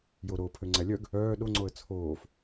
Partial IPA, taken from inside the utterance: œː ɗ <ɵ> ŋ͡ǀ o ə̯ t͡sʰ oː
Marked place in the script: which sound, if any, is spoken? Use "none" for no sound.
o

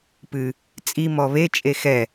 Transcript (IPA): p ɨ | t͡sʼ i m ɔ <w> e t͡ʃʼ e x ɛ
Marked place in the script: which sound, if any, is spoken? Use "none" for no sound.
β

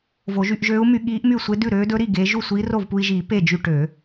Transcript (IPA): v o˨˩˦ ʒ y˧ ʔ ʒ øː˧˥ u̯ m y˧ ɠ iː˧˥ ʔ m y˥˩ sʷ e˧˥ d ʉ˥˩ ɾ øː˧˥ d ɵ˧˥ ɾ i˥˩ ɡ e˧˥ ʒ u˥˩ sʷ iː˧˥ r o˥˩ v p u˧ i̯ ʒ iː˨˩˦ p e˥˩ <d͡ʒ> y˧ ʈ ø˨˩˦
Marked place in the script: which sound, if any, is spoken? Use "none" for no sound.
d͡ʒ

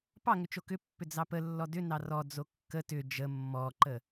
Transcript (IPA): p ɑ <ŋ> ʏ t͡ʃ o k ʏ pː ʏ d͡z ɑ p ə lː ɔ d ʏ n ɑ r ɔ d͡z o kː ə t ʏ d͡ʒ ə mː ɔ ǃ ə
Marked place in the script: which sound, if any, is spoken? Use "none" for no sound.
ŋ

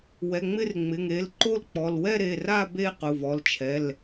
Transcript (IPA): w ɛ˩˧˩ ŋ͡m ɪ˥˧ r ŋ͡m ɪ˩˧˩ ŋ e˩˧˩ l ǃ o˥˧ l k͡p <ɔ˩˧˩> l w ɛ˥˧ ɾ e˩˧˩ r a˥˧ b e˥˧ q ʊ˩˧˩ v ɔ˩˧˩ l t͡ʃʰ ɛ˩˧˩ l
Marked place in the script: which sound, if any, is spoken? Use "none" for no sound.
ɔ˩˧˩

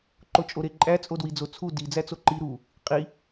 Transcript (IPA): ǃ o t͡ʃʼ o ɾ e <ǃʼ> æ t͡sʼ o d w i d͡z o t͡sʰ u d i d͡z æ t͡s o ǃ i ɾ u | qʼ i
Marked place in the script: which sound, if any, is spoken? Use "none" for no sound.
ǃʼ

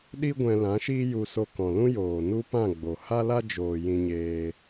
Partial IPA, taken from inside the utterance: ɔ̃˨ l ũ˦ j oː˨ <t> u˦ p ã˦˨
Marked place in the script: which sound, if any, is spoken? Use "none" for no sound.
n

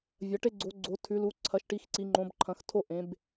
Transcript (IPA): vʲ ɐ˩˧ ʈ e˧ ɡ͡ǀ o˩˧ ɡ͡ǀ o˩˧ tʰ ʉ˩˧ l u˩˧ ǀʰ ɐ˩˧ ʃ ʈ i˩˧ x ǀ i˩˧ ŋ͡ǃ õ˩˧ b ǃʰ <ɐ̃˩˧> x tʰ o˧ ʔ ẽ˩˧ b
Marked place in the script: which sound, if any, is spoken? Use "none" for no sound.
ɐ̃˩˧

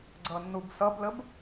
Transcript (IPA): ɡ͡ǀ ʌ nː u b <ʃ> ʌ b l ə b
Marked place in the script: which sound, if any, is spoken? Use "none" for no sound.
s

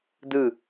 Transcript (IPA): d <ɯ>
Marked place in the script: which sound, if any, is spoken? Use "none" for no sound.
ɯ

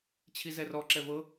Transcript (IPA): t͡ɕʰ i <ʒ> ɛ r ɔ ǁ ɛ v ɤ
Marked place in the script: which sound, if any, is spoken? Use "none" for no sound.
z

